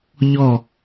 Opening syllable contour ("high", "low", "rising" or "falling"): falling